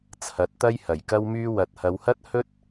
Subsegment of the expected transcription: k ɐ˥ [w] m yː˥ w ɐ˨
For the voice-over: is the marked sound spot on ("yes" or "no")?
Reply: yes